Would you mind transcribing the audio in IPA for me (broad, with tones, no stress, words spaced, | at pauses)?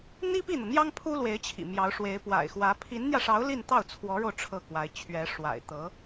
n̪i˥pi˥˩n̪ɤ˩n̪jɑ˥ŋ pʰu˥lwe˧˥ɪ̯t͡ɕʰḭ˨˩ mjɑ˧˥ʊ̯ʂwe˧˥ɪ̯ pwa̰˨˩ɪ̯xwä˧˥ pʰi˧˥nn̪jä˧ʂɑ˧˥ʊ̯ li˥˧nt̪ɑ˥˩ʊ̯t͡sʰwɔ˧˥ɻo˧ʊ̯ ʈ͡ʂʰɤ˥˩kwa˧˥ɪ̯ t͡ɕʰɥɛ˧˥ ʂwa̰˨˩ɪ̯t̪ɤ˧˥